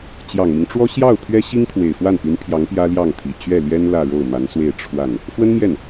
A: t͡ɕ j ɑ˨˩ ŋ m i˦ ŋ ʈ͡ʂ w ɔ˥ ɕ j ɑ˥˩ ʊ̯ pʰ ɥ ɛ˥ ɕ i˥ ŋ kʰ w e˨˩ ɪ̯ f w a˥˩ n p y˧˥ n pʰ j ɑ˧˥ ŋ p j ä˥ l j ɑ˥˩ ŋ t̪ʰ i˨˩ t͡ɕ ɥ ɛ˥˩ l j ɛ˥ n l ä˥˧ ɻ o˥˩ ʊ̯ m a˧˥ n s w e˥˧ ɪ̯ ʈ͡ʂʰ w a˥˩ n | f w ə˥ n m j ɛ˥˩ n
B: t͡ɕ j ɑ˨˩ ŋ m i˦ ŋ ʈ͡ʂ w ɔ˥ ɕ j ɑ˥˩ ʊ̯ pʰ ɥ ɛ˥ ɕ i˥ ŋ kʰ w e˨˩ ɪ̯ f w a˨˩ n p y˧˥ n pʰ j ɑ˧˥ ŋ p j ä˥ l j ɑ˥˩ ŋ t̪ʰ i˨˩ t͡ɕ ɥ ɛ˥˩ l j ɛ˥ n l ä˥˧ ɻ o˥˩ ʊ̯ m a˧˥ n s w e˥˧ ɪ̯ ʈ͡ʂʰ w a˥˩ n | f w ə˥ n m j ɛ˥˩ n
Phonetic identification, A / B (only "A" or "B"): A